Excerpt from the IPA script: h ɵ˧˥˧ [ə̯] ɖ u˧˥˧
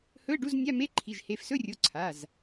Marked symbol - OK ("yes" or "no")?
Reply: yes